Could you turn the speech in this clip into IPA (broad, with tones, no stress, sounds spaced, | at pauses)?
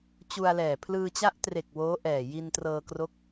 t͡ɕ u˧ a̯ l ɛː˨˩ pʰ l ɯː˧ t͡ɕ a˦˥ ʔ t r e˨˩ k̚ w oː˦˥ ʔ ɛː˨˩ j i˧ n t r ɤː˧ k r o˦˥ k̚